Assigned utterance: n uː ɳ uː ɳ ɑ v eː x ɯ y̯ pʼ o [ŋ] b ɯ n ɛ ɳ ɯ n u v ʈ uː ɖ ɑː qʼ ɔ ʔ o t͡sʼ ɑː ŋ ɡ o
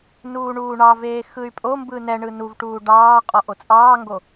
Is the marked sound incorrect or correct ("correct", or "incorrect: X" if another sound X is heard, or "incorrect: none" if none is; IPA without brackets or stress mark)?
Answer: incorrect: m